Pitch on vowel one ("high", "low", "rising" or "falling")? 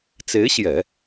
rising